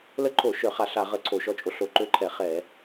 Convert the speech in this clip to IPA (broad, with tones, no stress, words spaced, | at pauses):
lə˦˥ǃʰo˧˩˧ ʃœ˧˩˧χa˧˩˧ɬ a˧˩˧ʁə˧˩˧ ǀʰo˧˩˧ʃɔ˦˥t͡ʃʼo˧˩˧ɬ o˧˩˧ǃø˦˥ǃʰɛ˧˩˧ χɛ˧˩˧